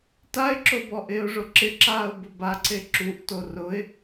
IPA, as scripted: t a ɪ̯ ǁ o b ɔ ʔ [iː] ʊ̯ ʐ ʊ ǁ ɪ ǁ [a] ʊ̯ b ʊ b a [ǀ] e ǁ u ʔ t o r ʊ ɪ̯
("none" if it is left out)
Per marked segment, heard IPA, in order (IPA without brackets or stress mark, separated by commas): ɪː, aː, ǀ